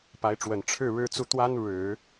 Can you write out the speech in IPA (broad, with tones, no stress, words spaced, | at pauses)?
pa˧˥ɪ̯ʈ͡ʂwə˨˩n ʈ͡ʂʰɻ̩˥˩ ɻɻ̩˥t͡su˥˩ t̪wa˥nɻɻ̩˨˩˦